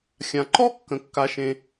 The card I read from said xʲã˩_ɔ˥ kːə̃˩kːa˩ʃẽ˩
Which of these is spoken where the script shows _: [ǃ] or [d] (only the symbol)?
ǃ